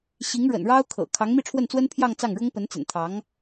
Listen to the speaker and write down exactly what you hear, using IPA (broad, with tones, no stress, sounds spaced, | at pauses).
ɕ i˧˥ ŋ ɻ ə̰˨˩ n ɻ ɑ˥ ʊ̯ kʰ ɤ̰˨˩ kʰ ɑ˧˥ ŋ m i˥˧ ʈ͡ʂʰ w ə˥˩ n t͡s w ə˥ n pʰ j ɑ˥˧ ŋ t͡s ɑ˥˩ ŋ ɻ ʊ˥ ŋ p ə˧˥ n t͡s ə̰˨˩ n t̪ʰ ɑ˧˥ ŋ